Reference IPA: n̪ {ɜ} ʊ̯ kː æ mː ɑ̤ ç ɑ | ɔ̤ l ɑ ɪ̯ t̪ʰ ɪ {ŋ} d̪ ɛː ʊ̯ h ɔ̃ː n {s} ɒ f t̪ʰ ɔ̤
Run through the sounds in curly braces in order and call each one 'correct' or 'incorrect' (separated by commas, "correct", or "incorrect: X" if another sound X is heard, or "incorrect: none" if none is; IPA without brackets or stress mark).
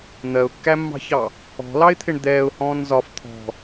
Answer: correct, incorrect: ɳ, incorrect: z